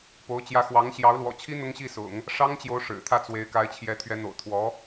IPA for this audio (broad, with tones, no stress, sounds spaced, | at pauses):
p o˧˥ ʊ̯ t͡ɕ j ä˧˥ x w ɑ˧˥ ŋ ɕ j ɑ˧˥ ʊ̯ l w ɔ̰˨˩ t͡ɕʰ i˥ n̪ ʊ˥ ŋ ɕ i˥˩ s ʊ̰˨˩˦ ŋ | ʂ ɑ˥ ŋ t͡ɕ j o˧˥ ʊ̯ ʂ ɻ̩˨˩ t̪ʰ ä˥˩ t͡s w e˧˥ ɪ̯ k a˧˥ ɪ̯ t͡ɕʰ j ɛ˧˥ t̪ʰ ɥ ɛ˧˥ n̪ o̰˨˩ ʊ̯ t̪ʰ w ɔ˧˥